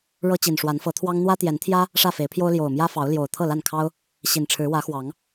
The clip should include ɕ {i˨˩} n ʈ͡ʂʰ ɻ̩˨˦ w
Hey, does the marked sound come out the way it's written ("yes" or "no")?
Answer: yes